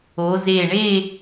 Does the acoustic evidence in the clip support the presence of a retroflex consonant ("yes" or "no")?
yes